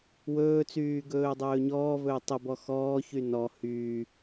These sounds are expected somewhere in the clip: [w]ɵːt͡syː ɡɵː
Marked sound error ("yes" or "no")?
no